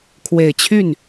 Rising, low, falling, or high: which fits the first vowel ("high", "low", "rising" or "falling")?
low